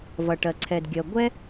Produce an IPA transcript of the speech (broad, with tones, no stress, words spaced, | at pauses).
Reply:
vʌ˩ʈɜ˩ǀʰɛ˩dɡʲɜ˩ ɡʷɛ˥